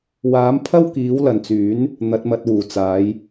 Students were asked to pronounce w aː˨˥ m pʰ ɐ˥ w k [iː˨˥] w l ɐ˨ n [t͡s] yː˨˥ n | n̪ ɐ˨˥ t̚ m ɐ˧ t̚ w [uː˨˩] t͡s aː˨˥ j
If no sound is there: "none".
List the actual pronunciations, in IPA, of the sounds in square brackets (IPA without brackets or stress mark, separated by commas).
iː˨˥, t͡s, uː˨˩